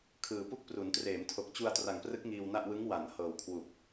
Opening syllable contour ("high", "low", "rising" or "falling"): low